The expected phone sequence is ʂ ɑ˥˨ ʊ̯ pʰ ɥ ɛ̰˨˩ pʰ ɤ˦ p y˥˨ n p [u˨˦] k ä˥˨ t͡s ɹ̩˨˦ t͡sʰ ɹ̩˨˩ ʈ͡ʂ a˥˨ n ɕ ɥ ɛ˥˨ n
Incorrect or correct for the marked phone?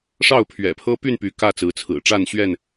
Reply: incorrect: y˨˦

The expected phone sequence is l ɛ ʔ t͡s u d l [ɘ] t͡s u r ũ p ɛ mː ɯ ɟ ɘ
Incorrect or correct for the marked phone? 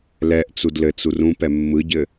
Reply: correct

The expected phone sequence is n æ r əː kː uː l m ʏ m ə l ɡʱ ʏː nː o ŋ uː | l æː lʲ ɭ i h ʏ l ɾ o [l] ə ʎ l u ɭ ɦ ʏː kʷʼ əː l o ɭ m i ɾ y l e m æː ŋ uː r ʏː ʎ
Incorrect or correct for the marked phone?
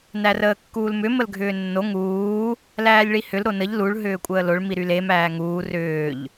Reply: incorrect: n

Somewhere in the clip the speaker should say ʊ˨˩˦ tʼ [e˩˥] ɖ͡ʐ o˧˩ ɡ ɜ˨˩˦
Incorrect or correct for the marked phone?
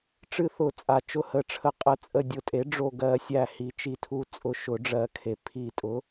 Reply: correct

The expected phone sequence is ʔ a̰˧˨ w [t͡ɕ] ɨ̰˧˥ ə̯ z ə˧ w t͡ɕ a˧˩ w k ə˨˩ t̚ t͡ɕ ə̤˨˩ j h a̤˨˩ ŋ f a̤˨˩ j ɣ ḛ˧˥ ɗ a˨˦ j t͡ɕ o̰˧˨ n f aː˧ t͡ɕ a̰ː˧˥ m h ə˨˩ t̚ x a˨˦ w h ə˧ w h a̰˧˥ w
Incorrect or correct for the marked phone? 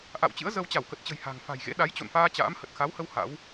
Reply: correct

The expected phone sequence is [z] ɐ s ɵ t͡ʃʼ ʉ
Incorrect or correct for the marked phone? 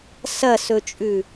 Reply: incorrect: s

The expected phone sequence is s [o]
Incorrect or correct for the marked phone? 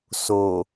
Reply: correct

